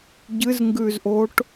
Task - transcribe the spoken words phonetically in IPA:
ɟ ɨ z ŋ ɡ ʉ z ʔ o ʈ

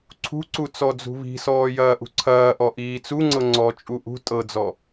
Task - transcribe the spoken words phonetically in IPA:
ǀʰ ṳ ǀ u t͡s ɔ d͡z ṳ β i̤ s ɔː j ɐː ʔ ṳ ǀʰ ɐː ʔ ɔ ʔ iː t͡s u ŋ͡ǀ ɤ ŋ͡ǀ ɔ t͡ʃʼ u ʔ ṳ tʼ ɤ d͡z ɔ

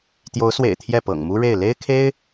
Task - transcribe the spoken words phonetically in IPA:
t̪ j o˧˥ ʊ̯ s w ḛ˨˩ ɪ̯ t̪ʰ j ɛ˥˩ p ɤ̰˨˩ ŋ m u˥ ɻ e˥˩ ɪ̯ l e˥ ɪ̯ kʰ e˥ ɪ̯

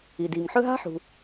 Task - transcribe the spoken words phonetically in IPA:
i˩ d iː˩ ŋ ħ ɵ˦ ɦ a̤˦ ħ ṳ˩

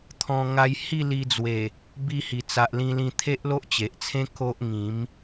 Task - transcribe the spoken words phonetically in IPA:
t̪ʰ ɔ̃˧ ŋ a˧ j h i˥˧ l i˧ d͡z w e˨˩ | b i˧ h i˨˩ t͡s a˨ ʔ l ĩ˧ l ĩ˧ t̪ʰ e˦ ʔ l o˦ ʔ t͡ɕ e˨ ʔ t͡sʰ ẽ˦ k o˦ ʔ ŋ ĩ˨˦ m

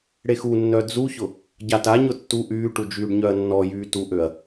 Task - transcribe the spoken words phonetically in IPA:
ɽ e x u nː œ d͡z u ç ʊ | ɟ a t a ɲ ʊ tː u ʔ yː ʈ u d͡ʒ yː ɖ ɲ œ ɐ̯ nː ɔ j yː t u ʔ ø ɐ̯

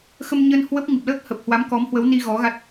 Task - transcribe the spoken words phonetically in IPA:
x ə˧ m ɲ ə˧ n h w ə˦˥ p̚ ŋ ɨ˨˩ p̚ l əː˦˥ k̚ h ə˨˩ p̚ h w a˨˦ m k ɔ˨˦ m h w ə˨˦ w n i˧ ɣ ɔ˨˦ ɣ a˦˥ t̚

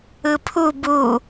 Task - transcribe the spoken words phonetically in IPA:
ɯ pʰ u b u

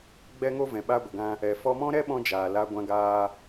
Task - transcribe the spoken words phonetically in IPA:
ɡ͡b ɛ˦ ŋ o˦ v ɛ̃˨ ɓ a˧ ɡʷ ə˨ ɡ ã˧ | ɛ˨ f ɔ˧ m ɔ̃˦ ɾ ɛ˦ ɓ ɔ̃˧ d͡ʒ aː˨ l a˧ ɡʷ ã˧ ɡ aː˧

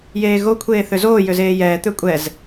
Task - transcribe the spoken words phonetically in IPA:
j eː ɣ o kʷʰ eː θ ø z oː j ø z eː j ɛː t̪ ø kʷʼ ɛ z

